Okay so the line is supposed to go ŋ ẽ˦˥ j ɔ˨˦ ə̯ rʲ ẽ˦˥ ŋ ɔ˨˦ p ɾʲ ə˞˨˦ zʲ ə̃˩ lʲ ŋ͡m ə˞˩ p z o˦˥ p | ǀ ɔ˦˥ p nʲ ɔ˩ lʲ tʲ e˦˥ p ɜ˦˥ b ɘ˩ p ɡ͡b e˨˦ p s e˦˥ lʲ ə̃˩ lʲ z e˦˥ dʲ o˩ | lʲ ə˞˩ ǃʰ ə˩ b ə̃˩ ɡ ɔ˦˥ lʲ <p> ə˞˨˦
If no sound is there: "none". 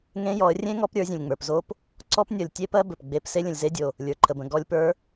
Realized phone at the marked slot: p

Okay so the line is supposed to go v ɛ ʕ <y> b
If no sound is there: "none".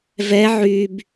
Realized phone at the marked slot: y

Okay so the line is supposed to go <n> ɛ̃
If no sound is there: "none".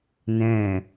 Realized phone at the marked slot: n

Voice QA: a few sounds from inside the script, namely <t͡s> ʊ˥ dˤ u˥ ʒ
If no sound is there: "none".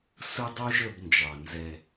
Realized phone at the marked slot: s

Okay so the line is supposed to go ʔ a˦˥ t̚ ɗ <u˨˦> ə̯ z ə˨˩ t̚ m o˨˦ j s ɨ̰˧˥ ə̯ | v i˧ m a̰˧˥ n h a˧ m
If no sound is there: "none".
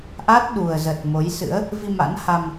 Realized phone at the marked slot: u˨˩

